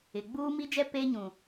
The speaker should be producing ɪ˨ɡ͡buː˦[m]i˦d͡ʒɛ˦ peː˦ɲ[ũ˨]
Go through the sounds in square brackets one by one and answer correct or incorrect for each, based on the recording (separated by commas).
correct, correct